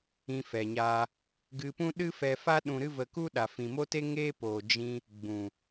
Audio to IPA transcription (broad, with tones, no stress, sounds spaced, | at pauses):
ĩ˧ f ɛ˨ ɲ aː˧ | ɡ ɨ˧ p ũ˦ ɗ ɨ˦ f ɛ˧ f a˦ ɗ ũ˧ ɾ ɨ˦ v ə˧ k u˦ ɗ a˨ f ĩ˨ m o˦ t e˦ ŋ eː˦ p oː˨ d͡ʒ ĩ˧ | ɡ͡b ũ˨